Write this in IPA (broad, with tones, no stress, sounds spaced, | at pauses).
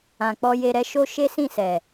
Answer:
ã˨ k͡p ɔ˧ j e˧ ɾ ɛ˦ ʃ o˧ ʃ e˦ s ĩ˦˨ s ɛ˨